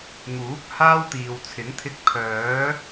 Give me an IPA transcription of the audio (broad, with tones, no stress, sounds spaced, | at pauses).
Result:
ŋ uː˨˥ k̚ h aː˥ w t̪ iː˨ w t͡sʰ ɪ˨˥ ŋ t̪ʰ ɪ˧ k̚ pʰ œː˨˥